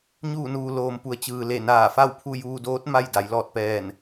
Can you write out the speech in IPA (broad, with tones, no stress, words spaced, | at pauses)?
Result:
ɲuː˧˩nuː˩ loː˩mpu˩˧ə̯ t͡ɕɯː˩le˧˩naː˧˩ fa˥˨wpʰu˥˨ juː˧doː˧˥t̚ ma˥˨j da˩˧jlɔː˧˩t̚pɛː˧˩n